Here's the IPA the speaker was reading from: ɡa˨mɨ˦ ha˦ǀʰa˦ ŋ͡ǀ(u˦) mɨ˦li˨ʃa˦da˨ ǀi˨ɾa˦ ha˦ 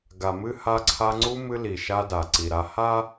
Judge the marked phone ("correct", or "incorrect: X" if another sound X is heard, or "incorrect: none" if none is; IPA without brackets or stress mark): correct